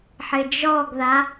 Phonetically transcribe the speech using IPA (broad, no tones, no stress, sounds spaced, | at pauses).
ħ ɪ d͡ʒ ɔ ɡ ð a